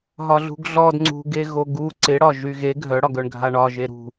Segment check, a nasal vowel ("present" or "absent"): absent